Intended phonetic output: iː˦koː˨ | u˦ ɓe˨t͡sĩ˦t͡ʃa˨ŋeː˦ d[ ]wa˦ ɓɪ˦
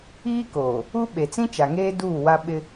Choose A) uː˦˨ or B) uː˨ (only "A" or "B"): A